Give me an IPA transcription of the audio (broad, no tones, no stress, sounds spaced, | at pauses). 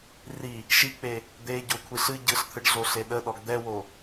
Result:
r i | ʃ i k͡p e | d̪ e ɟ o kʷʰ i ɬ ɨ ɟ ɯ ɬ t̪ʰ ɯ ɖ ɮ o ɬ e ɗ ə ɗ ɔ ɡ d̪ ɛ w o